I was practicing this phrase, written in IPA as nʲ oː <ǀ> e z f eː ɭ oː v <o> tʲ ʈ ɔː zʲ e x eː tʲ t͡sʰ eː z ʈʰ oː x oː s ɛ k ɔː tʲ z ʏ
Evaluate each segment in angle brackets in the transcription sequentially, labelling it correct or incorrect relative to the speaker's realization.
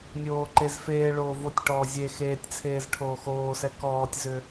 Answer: incorrect: ǃ, correct

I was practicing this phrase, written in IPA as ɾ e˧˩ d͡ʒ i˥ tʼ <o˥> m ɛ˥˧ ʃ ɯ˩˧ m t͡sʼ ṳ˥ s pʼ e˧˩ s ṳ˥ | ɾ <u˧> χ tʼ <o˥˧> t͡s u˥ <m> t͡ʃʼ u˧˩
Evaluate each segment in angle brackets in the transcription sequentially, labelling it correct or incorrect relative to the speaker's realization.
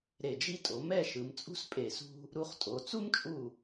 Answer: incorrect: o˩˧, correct, incorrect: o˩˧, correct

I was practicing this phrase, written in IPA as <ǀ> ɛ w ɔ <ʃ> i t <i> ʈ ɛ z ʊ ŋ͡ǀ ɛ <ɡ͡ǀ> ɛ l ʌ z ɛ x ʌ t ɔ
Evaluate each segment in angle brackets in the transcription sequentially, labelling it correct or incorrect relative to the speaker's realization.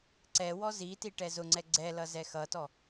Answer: correct, incorrect: z, correct, correct

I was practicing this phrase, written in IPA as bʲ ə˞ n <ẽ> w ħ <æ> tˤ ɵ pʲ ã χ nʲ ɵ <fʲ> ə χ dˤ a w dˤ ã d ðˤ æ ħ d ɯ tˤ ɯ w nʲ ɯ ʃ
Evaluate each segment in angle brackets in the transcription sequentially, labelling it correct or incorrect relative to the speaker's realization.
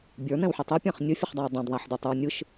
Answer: incorrect: ɛ̃, incorrect: ə, correct

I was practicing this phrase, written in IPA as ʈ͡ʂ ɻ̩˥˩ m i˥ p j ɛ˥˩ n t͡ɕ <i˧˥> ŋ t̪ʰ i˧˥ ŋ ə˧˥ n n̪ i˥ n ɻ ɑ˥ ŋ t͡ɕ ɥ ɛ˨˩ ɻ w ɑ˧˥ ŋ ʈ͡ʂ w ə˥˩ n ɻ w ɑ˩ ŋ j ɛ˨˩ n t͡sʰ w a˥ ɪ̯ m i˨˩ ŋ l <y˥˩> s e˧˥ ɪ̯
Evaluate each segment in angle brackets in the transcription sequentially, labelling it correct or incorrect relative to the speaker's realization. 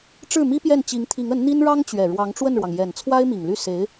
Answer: correct, correct

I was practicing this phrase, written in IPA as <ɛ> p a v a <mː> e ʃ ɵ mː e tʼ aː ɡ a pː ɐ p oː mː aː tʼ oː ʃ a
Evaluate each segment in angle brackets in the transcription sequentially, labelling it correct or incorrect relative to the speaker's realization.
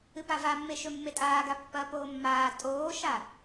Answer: incorrect: ɨ, correct

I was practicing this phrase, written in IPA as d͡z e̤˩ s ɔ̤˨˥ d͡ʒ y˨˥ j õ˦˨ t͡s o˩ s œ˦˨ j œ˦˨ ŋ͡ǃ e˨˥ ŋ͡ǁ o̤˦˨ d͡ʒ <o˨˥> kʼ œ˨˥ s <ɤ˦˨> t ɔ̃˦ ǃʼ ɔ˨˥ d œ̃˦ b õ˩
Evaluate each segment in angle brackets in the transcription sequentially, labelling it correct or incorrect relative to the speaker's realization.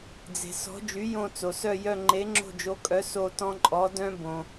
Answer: correct, incorrect: o˦˨

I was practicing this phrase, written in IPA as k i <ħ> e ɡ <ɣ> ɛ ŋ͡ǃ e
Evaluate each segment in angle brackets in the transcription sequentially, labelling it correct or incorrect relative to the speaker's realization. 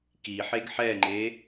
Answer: correct, incorrect: ħ

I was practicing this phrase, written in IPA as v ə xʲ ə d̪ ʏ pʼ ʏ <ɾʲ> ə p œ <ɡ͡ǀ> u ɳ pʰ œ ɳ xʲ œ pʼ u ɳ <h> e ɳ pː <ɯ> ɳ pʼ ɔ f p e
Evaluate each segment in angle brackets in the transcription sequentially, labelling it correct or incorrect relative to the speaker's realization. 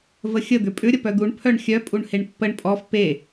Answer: correct, incorrect: d̪, correct, incorrect: ə

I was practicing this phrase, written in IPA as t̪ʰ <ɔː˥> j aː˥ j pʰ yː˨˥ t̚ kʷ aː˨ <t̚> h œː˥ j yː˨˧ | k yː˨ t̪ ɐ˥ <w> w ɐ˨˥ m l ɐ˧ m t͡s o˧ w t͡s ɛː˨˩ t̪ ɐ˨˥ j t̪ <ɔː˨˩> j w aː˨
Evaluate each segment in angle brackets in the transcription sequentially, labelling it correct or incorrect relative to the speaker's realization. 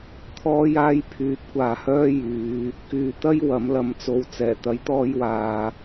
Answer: correct, incorrect: none, incorrect: j, incorrect: ɔː˧

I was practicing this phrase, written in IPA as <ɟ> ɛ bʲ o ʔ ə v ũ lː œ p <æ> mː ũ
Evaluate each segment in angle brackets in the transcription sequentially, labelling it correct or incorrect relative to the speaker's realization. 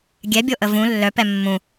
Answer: incorrect: ɡʲ, incorrect: ɛ

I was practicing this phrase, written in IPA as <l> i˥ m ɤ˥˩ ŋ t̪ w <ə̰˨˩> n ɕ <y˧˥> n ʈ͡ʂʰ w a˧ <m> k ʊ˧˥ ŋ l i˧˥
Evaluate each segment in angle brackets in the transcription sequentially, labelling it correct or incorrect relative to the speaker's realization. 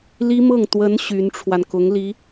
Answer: correct, incorrect: ə˧˥, correct, incorrect: n

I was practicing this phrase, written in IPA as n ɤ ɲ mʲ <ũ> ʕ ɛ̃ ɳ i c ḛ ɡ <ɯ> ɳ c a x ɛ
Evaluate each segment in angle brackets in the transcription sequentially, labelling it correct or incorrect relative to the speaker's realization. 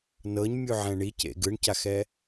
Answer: incorrect: u, correct

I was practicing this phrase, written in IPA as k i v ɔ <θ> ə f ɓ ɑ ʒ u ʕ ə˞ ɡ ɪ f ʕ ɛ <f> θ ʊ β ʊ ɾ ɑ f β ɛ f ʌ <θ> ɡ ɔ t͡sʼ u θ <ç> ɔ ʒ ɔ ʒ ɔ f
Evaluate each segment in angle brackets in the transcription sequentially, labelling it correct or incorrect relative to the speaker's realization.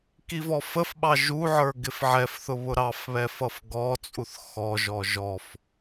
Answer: incorrect: f, correct, incorrect: f, incorrect: x

